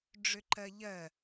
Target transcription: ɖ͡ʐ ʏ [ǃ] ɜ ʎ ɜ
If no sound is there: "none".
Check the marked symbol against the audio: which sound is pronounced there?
ǃ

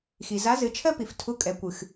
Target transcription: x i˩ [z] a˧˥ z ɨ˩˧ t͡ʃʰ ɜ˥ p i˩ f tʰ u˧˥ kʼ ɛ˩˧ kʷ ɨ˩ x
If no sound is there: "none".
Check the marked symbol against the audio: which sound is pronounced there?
z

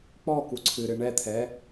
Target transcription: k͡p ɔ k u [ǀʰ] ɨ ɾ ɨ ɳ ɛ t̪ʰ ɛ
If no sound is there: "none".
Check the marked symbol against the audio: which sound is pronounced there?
ǀʰ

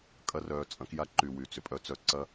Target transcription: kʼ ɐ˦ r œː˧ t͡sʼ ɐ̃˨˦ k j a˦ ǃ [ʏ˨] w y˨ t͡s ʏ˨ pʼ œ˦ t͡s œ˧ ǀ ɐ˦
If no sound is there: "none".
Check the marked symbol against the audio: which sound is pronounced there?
y˨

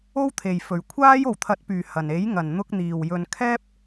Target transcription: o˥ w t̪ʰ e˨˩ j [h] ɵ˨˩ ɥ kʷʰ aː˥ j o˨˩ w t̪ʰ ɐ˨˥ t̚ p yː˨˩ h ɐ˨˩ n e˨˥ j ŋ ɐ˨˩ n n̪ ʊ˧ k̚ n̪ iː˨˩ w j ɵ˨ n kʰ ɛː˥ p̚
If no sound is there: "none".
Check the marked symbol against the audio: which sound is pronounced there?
f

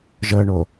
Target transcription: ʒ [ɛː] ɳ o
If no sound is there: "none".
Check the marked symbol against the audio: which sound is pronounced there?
əː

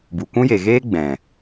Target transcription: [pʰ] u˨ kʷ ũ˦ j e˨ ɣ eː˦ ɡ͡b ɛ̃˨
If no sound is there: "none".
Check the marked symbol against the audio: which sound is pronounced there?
b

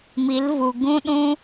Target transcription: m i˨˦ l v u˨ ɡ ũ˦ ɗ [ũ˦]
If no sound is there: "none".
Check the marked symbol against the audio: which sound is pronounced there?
ũ˦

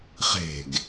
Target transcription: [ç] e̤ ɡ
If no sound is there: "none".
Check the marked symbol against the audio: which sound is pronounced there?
χ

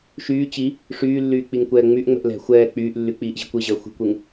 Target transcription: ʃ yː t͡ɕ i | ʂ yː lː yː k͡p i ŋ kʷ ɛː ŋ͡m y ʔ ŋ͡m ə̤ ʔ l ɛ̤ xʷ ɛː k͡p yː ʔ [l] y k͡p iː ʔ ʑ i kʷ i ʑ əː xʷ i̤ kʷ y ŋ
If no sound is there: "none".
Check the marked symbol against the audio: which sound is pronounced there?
lː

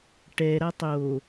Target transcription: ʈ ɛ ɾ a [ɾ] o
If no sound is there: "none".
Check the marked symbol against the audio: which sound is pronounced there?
tˤ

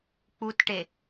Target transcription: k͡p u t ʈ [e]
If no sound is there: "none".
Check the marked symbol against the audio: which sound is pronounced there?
e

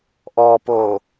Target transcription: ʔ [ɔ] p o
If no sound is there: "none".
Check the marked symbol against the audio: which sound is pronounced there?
ɔ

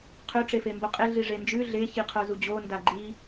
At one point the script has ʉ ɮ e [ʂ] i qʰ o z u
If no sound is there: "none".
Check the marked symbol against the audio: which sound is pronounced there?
ç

